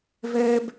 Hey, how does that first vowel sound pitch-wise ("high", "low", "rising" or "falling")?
high